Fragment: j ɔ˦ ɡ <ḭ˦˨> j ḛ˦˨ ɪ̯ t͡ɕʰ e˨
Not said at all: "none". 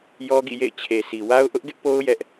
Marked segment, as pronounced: ḭ˦˨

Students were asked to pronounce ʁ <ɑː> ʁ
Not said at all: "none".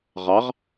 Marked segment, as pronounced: ɑ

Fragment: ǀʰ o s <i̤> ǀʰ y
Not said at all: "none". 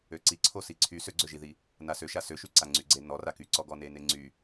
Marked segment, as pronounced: i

